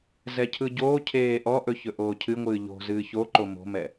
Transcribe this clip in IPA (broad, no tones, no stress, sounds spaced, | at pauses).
z ɛ cʰ ɯ ɟ oː cʰ eː ʔ ɔ ʔ ɵ ç ɵ ʔ oː cʰ ɨ ŋʷ ɨː ʎ o̤ z ɨː ç o ǃ o m o̤ m ɛ